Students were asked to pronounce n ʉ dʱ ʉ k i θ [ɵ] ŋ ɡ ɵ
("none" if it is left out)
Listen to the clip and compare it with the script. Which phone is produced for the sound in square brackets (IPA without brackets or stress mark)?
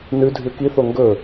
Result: o